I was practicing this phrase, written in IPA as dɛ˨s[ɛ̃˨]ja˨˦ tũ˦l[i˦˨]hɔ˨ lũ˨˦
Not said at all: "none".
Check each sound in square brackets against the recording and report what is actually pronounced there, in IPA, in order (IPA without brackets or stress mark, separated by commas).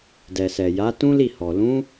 ɛ˨, i˦˨